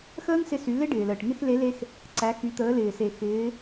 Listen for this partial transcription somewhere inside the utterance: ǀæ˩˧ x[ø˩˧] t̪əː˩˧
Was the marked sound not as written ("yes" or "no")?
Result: yes